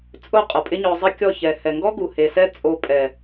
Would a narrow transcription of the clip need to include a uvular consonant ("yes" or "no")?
yes